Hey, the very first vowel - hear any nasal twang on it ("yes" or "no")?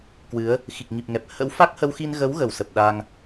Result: no